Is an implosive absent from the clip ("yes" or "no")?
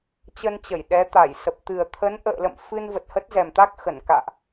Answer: no